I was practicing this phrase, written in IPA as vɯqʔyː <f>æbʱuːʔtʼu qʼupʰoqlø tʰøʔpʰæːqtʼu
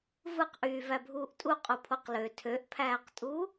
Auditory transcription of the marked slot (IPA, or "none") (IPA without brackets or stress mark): v